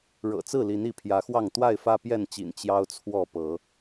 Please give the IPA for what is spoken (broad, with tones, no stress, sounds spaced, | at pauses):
ɻ ɤ̰˨˩ t͡s ɹ̩˥˨ l i˨˦ n i˨˦ pʰ j ä˨˦ x w ɑ˥˨ ŋ t̪ w a˥˨ ɪ̯ f ä˦ p j ɛ˥˨ n t͡ɕ ḭ˨˩ n t͡ɕ j ɑ˦ ʊ̯ t͡sʰ w ɔ˥˨ p ɤ˨˦